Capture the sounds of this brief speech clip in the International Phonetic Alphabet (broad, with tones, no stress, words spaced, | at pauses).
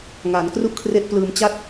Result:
ŋaː˩˦nkru˥˩ʔkʰre˦˥ʔplɯː˧m t͡ɕa˦˥t̚